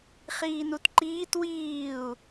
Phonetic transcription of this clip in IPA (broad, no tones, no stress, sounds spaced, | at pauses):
χ iː n u t ǃ iː t w iː u̯